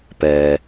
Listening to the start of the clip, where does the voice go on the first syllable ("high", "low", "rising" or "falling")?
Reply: low